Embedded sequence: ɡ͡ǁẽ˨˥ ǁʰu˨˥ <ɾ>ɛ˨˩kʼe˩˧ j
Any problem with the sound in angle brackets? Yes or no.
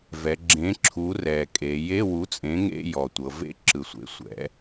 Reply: yes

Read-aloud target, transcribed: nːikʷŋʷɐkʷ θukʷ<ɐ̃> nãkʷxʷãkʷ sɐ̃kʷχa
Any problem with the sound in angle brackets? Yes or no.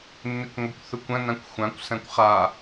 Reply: no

